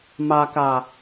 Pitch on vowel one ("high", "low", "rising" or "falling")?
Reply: low